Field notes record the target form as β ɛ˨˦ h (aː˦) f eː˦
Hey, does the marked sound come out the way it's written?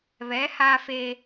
yes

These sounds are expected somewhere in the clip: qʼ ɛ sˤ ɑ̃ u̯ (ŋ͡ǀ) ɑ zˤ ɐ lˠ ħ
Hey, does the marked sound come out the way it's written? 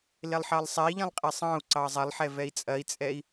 no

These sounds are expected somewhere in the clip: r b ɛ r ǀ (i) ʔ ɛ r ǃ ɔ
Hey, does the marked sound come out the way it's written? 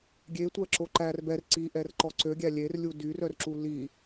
yes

